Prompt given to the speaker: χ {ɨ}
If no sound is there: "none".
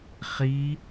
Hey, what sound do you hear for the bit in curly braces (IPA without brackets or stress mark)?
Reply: i